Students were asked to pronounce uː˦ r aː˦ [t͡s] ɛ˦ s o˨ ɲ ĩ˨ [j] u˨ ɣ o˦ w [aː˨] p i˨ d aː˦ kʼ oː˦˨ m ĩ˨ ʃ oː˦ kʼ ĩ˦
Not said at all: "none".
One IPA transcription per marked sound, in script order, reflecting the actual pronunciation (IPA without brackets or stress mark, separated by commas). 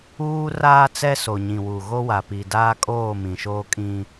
t͡s, w, a˨